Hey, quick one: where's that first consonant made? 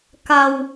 velum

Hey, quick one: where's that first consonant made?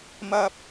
lips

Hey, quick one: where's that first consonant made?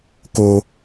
velum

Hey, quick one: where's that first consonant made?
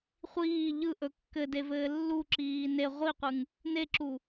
uvula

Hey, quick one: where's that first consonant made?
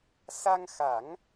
tongue tip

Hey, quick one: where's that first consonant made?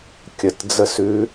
velum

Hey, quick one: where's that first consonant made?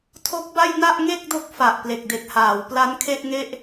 tongue tip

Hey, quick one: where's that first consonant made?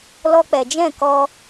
tongue tip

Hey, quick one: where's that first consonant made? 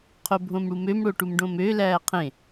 uvula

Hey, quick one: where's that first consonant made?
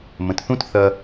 lips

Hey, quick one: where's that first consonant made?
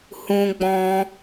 throat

